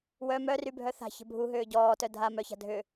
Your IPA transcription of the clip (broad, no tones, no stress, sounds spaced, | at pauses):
w œ m œ r y bʱ œ θ a̤ ç ə̤ bʱ u ɦ ʏː ɟ ɔː t œ dʱ a m œ ç a̤ dʱ ʏ